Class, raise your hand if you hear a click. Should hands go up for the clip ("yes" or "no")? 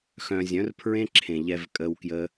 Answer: yes